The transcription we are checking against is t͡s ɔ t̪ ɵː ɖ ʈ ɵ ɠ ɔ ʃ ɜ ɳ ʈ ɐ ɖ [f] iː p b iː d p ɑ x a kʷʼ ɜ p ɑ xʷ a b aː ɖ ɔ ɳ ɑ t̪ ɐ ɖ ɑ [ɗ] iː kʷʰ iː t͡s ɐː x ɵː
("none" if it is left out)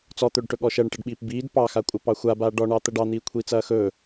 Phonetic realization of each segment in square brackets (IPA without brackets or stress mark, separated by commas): ɓ, n̪